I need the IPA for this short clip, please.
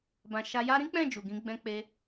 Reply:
b ã˧ ʃ a˧ j a˦ ɾ ĩ˦ k͡p ɛ̃˦˨ d͡ʒ u˨ ɡ ĩ˨˦ ɡ͡b ɛ̃˧ k͡p e˧

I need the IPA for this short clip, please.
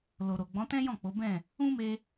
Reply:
l o˨ ɾ o˨ ɡ͡b ɔ̃˨˦ t ɛ̃˦ j ɔ̃˦˨ k͡p o˨˦ b ɛ̃˦˨ | ũ˦ m e˧

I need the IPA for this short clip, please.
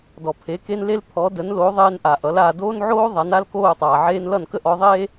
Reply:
d ɔ˩ pʰ e˩˥ k e˥ n l e˥ l pʰ ɔ˩˥ d ə˩˥ n l oː˩˥ ðˤ eː˧ n ʔ a˩ ʔ ʌ˩˥ l aː˧ d oː˥ n ʕ oː˥ ðˤ a˩˥ n a˥ l k oː˥˩ tˤ aː˩ ʕ eː˥ n l ʌ˥˩ n k ə˥ ʔ ɔ˩˥ ðˤ eː˥

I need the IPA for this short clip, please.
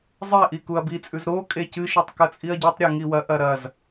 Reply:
zˤ e ʔ i k u ɐ̯ b i t͡sʼ ʉ z ɾ o kʼ e c ɨ ʃ i tˤ k ɐ t͡sʼ i ɐ̯ ɟ ʉ tˤ ɾʲ ʉ ŋ i w ɐ ʔ ɐ ɾ ɐ z

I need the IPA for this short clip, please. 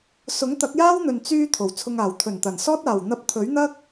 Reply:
s ʊ˨˥ ŋ t̪ ɐ˨˥ k̚ j aː˥ w n̪ ɵ˨ n t͡s yː˧ t̪ʰ o˨˩ w t͡sʰ ʊ˧ ŋ aː˨˩ w t̪ʰ ɵ˨˩ n t̪ ɐ˨˩ n s ɔː˥ t̚ aː˨˩ w n̪ ɐ˧ p̚ t̪ʰ ɵ˨˥ ɥ n̪ ɐ˥ k̚

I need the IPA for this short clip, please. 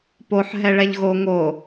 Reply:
p o ħ ɦ ɛ ɭ ɛ ʎ ɣ o ŋ o

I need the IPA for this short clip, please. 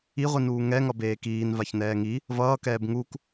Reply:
i ʁʷ i n uː ŋ ɛ ŋ ʌ b eː k iː n v a ç n ɛː ŋ i | v ʌː k ɛː b ŋ u k

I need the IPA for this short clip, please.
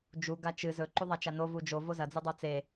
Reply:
d͡ʒ u ɡ a t͡ʃ ɨ z ɵ ǃ u ðˤ a t͡ʃ a n o v u d͡ʒ o v o z ɐ d͡z ʉ dˤ o t͡s e

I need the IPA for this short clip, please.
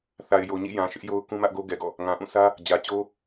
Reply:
θ a˨ ɪ̯ j o˨ ɲ ḭ˦˨ j ã˨ ʃ ɪ˦ ʔ j o˦ ʊ̯ k ũ˦ m ä˦ ʔ ɡ o˦ ɡ ɛ˨ ɡ ɔ̰˦˨ | ŋ ã˨ ʔ ũ˦˨ s ä˦ | d͡ʑ ä˨ t͡ɕ o˦

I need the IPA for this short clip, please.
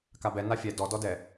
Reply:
k a b ɛ n a fʲ ɛ d ɔ d ɔ d ɛ

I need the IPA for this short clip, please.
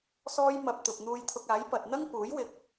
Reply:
s ɔː˥ j m ɐ˧ p̚ t̪ ʊ˧ k̚ n̪ uː˥ j t̪ʰ ʊ˧ k̚ aː˨˥ j p ɐ˨ t̚ n̪ ɐ˥ ŋ p uː˨˥ j w ɪ˧ k̚

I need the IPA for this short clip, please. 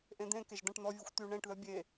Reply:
ʔ ẽ d̪ ẽ k e ʒ d̪ ã ʈ n̪ ɔ vʲ ɔ xʷ t̪ y ɳ ẽ ʈ ð œ bʲ e

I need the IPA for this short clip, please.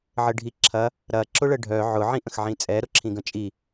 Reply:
ʕ ə ɖʱ i ǁʰ ɐ | ɾ ɐ ǁ ʊ ɭ ə ɖʱ œ ʕ ʊ ʕ ĩ ʔ ə̃ x ʕ ĩ t͡sʼ ɛ ɾ ʊ ǁʰ ĩ ɡ ə̃ t͡ʃʼ i

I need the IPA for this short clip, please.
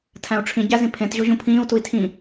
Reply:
tʰ æ̃ u̯ ʈ͡ʂʰ ĩ ɟ æ z ĩ pʰ ẽ t ʑ o ʑ ũ pʰ ĩː u̯ t u i̯ tʰ ĩ

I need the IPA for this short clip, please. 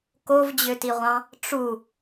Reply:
k o v d͡ʑ ø t i ʁʷ ɑ̃ | ʈ͡ʂ u

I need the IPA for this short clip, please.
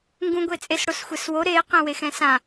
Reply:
ŋ ɡ ũ ɡʷ e t͡sʼ e s ɽ o s xʷ ɛ s w o ɾ e q ẽ w e x ɛ̃ s ã

